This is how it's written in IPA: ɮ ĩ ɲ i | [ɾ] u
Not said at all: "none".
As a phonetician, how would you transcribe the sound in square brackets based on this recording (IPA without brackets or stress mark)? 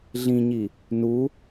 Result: n